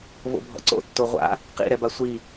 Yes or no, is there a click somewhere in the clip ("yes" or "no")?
yes